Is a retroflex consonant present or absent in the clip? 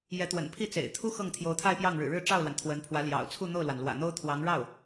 present